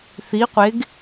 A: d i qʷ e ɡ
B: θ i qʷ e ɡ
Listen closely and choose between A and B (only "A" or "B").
B